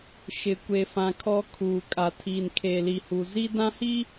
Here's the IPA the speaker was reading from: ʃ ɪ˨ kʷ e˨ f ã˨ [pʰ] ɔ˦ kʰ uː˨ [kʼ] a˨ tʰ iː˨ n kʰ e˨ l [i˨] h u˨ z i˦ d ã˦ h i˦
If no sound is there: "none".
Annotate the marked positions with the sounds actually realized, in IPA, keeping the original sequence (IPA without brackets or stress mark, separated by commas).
kʰ, kʼ, i˨